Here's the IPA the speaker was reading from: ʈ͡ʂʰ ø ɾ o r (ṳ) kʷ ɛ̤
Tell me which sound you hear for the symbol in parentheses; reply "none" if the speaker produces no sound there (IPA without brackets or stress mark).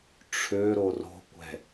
o̤